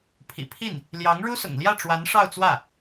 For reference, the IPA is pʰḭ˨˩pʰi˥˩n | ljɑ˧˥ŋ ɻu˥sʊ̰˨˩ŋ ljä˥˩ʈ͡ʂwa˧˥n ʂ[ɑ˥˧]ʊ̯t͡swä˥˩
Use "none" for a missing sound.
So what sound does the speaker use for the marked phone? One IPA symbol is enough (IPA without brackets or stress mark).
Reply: ɑ˥˧